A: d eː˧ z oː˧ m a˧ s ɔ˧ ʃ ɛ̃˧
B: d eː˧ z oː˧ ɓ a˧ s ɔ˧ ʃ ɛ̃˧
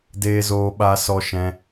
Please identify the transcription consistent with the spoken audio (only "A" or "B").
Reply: B